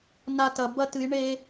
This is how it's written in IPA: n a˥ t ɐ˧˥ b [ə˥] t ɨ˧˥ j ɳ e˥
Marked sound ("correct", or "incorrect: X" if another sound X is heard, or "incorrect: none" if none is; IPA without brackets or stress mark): incorrect: ɐ˥